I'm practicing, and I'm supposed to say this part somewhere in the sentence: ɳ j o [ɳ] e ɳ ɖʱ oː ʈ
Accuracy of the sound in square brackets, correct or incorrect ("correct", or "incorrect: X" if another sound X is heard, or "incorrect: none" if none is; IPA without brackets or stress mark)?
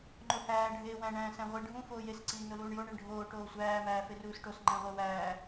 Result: correct